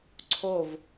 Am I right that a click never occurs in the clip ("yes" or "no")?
no